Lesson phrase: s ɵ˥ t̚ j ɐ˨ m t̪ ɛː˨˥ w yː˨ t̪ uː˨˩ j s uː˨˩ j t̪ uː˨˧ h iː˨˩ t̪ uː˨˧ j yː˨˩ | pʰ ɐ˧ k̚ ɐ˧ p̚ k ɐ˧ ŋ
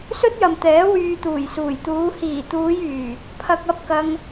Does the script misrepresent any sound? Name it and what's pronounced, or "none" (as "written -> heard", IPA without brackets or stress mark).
none